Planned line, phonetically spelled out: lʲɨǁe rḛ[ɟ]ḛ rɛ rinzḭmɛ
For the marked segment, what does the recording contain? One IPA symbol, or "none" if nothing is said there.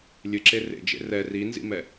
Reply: d͡ʒ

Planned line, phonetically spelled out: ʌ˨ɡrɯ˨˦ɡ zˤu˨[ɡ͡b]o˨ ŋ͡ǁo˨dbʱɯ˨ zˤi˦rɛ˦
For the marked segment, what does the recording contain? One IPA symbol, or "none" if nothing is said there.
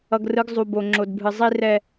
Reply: b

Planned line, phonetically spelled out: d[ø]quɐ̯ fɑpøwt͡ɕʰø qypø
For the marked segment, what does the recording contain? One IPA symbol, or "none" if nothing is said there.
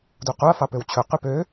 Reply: u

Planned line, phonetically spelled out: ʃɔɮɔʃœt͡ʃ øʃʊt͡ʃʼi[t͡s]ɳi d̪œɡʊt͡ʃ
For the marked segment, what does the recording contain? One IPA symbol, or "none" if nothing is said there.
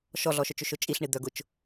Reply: ɬ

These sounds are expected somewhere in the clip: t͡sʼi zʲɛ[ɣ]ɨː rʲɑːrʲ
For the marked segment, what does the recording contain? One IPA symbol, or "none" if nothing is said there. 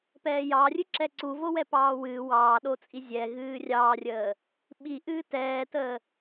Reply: ɣ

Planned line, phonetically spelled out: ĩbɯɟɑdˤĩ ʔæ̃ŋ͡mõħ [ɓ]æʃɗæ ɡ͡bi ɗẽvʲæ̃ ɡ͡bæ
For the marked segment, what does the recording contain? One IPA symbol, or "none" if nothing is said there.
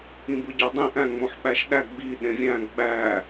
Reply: ɓ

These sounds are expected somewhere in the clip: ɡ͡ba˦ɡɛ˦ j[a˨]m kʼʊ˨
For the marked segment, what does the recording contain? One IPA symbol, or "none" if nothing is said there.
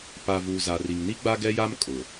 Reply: a˦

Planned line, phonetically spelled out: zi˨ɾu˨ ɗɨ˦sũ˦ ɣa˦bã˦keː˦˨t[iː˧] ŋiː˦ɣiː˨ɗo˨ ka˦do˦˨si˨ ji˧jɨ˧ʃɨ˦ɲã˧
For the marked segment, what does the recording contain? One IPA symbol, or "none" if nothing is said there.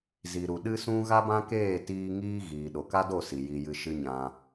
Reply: iː˧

